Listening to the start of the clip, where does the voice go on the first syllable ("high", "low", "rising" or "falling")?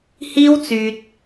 high